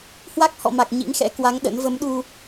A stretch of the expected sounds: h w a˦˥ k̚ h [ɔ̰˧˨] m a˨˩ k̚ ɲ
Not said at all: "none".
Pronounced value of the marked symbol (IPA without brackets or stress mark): ɔ̰˧˨